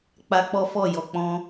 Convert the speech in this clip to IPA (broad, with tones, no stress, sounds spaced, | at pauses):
k͡p a˦ k͡p ɔ˦ f ɔ˦˨ j ɔ˨ k͡p ɔ̃˧